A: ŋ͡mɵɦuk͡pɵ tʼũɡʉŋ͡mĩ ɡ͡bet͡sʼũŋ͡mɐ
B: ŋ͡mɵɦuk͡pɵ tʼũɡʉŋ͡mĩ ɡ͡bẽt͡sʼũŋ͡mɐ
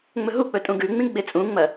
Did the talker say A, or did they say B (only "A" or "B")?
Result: A